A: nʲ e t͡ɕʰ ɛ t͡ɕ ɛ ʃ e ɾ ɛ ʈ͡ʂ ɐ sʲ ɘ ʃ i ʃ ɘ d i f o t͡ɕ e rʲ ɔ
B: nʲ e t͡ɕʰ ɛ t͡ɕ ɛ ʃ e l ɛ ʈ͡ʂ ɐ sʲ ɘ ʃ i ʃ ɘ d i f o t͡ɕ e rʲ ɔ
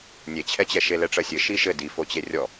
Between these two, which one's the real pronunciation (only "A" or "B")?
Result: B